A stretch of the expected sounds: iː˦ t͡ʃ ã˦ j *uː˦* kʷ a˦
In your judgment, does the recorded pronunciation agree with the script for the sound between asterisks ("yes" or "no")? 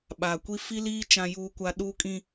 yes